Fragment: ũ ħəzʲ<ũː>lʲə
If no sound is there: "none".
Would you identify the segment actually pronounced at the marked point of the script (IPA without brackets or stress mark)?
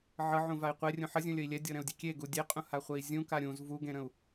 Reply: ũ